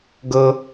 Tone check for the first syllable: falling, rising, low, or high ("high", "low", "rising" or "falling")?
high